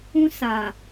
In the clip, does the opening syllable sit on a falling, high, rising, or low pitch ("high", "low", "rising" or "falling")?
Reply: high